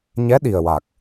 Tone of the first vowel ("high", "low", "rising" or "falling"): rising